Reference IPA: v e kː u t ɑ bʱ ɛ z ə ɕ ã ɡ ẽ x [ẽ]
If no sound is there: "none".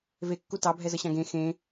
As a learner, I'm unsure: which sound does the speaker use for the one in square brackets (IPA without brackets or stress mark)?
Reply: ẽ